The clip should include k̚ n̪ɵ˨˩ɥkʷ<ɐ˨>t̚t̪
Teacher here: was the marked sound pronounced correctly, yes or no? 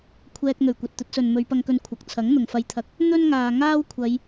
yes